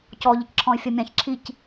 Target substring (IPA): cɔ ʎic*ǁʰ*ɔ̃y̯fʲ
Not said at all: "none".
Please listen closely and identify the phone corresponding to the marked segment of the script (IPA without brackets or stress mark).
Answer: ǁʰ